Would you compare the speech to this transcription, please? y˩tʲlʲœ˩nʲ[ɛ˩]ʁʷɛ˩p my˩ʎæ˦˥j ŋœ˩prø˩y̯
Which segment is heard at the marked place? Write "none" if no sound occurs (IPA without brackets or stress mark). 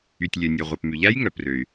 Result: œ˩